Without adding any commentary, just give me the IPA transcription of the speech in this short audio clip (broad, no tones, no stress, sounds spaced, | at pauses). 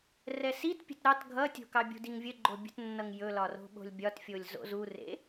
r ɛ s i t pʲ ə̤ t ɾ ɑ t ɡʱ ʌ tʲ o̤ k ɑ bʲ ṳ d i ŋ vʲ ə ɡ͡ǃ o bʲ ə̤ t nː ʌ ŋ j ɵ l ɒ r o̤ ɓ o̤ lʲ bʲ ɒ t fʲ o lʲ z o̰ z u r ḛ